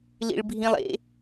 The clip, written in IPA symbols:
l ḭ ɭ bʱ ĩ lˠ ḛ

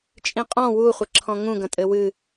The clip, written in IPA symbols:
t͡ʃʼ ĩ qʼ ɔ̃ w u χʷ ɘ ǁʰ ɔ̃ ŋ ũ ɡ ɐ̃ tʼ ɘ w ɨ

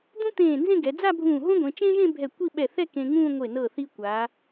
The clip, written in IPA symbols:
d̪ ũ˥ t̪ ẽː˧˩ n z ẽ˥˧ ɡ ɛ˩˧ d͡z a˥˧ bʱ ũː˧˩ ɦ õ˥ ɡʷ ẽ˩˧ t͡ʃ ẽ˥ ʒ ẽ˥˧ bʱ ɛ˧˩ kʷ i˥˧ ɓ ɛ˧˩ θ ɛ˥˧ k ẽ˧ ŋ ũː˥˧ ŋʷ e˧˩ n ɤ˧˩ θ i˧ kʷ a˩˧

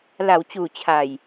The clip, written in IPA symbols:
l a˩˦ w t͡ɕ uː˨˩ t͡ɕʰ a˨˩ j

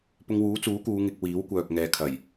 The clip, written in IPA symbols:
p ʊ˧ ŋ w uː˨˥ t͡s uː˨˥ k uː˨˧ ŋ ɪ˧ k̚ w iː˨˥ w kʷ œː˨ k̚ ŋ ɛː˨ kʰ ɐ˨˩ j

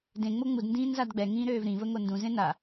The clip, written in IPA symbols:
d ẽ ŋ͡m o ŋ͡m u d n d ĩː n z a d ɡ͡b ɛ ŋ ĩː ɾ øː v ɾ ĩ v ə ŋ o n d ũ z ẽ n a

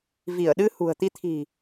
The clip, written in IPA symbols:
v i˧˩ ə̯ ɗ ɨ˧ h ṳ˨˩ ə̯ t̪ i˧ t̪ʰ i̤˨˩

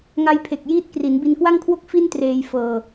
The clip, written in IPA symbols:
ŋ a˧ j pʰ e˨˩ k̚ j iː˦˥ t̚ k r i˩˦ n b i˧ n k w a˥˩ ŋ kʰ w o˥˩ k̚ f i˥˩ n t r eː˧ j f ɤː˧

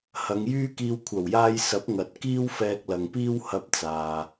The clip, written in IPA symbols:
h ɐ˨˧ ŋ j yː˥ k iː˧ w kʷʰ ɐ˨˩ w j aː˧ j s ɐ˨˥ p̚ ŋ ɐ˨ t̚ k iː˥ w f ɛː˧ k̚ l ɐ˨ ŋ p iː˥ w h ɐ˧ p̚ t͡s aː˨

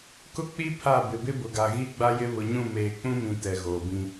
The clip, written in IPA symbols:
k ʊ˦ k͡p i˦ pʰ a˦˨ b ɪ˨ b ɪ˦ b ʊ˨ ɡ a˨ ɣ i˦ ɡ͡b a˦ j ɪ˦ β ʊ˨ ɲ ũ˦˨ m eː˨ k͡p ũ˦ m ĩ˨ t ɛ˨ ɣ oː˨ b ĩ˦

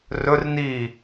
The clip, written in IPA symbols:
r ɵ r n iː

